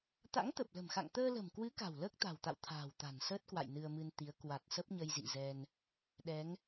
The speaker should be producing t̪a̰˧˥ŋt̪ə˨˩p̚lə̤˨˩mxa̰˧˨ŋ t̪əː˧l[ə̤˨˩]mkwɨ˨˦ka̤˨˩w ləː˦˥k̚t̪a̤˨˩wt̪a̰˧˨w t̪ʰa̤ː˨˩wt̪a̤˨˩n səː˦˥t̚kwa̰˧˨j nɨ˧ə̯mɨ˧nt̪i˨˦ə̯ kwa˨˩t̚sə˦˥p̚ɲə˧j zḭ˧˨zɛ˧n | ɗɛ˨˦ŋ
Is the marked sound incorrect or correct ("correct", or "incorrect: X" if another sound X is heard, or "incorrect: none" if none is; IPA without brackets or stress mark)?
correct